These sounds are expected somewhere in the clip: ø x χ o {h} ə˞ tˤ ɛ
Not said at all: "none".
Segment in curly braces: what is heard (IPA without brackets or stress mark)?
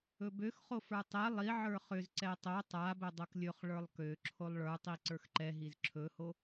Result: f